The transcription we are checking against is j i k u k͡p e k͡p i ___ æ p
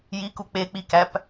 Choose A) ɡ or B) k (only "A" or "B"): B